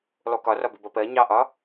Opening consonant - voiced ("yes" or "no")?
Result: yes